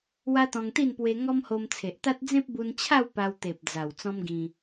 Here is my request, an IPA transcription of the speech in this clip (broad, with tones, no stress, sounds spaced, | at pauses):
w a˦ t̪ ɔ̃˧ ŋ t̪ i˥˧ n p w e˧ ŋ ɔ˦ m h o˧ m t͡sʰ e˨ ʔ t̪ a˦ t̚ d͡z ẽ˦ p̚ b u˧ n t͡ɕʰ a˥˧ w p a˧ w t̪ e˨ p̚ d͡z a˨˩ w t͡s ɔ̃˦ m ɡ ĩ˧